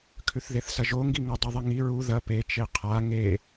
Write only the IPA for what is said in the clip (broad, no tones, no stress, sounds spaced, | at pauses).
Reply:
kʰ ʉ θ ð e θ s ɐ ʒ o ŋ ɡ i ŋ ɵ dˤ ʉ ðˤ i ŋ i ɹ u ð ɐ p e t͡ʃ e qʰ a ŋ e